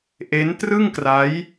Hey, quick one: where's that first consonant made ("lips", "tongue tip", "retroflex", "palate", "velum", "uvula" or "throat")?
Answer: throat